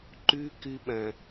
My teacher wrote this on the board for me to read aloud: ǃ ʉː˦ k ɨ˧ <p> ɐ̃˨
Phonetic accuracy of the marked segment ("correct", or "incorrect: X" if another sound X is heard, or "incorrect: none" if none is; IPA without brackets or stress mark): incorrect: ɓ